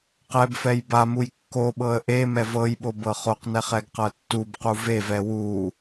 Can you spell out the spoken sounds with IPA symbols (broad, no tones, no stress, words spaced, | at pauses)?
qɛbfɛj bamuj kːoɓɤə̯ ʔe mɛvɤjɓo bɤχoqnɛχ ɛɡqɤtːubqu vevɛ wu